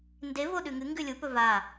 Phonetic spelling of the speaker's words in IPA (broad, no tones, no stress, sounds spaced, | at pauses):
n d e v o ɗ ʉ ŋ ɨ ŋ ɡ ʉ lʲ u p ɵ v a